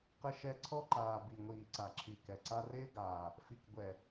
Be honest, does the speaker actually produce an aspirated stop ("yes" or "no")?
yes